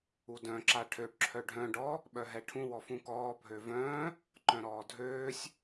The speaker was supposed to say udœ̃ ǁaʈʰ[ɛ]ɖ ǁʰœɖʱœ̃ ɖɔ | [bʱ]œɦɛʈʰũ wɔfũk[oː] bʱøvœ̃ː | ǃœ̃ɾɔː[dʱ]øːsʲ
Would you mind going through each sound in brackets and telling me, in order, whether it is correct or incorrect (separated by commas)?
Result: incorrect, incorrect, incorrect, correct